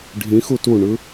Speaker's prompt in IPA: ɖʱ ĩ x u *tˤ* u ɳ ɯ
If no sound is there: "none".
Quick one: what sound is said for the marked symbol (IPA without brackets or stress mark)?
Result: t